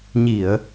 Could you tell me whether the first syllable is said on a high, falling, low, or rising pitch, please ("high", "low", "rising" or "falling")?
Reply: low